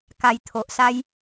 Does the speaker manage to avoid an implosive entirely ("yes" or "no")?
yes